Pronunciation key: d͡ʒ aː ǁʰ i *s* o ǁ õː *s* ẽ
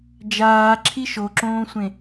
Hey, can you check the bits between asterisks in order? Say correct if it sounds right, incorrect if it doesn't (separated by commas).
incorrect, incorrect